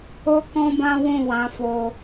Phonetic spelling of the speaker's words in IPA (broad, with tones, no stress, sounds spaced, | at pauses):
o˦ k ɔ̃˦ b ã˦ w ũ˦˨ w ã˨˦ f o˧